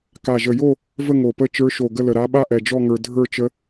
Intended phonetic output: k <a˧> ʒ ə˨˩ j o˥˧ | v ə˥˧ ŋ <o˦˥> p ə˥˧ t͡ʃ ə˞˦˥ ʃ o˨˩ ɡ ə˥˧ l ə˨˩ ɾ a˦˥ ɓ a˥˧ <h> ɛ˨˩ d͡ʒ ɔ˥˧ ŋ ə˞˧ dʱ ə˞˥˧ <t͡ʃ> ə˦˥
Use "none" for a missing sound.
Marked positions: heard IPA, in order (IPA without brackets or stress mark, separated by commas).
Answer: a˨˩, o˨˩, ʔ, t͡ʃ